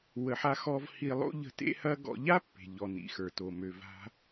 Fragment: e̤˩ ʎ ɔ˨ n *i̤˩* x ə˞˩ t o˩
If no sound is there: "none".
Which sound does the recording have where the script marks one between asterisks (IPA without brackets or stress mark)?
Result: ḭ˩